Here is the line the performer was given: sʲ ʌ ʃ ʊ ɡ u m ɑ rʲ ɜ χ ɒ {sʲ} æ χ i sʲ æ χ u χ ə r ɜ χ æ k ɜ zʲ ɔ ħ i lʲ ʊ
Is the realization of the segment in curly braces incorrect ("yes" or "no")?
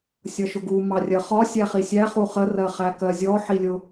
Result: no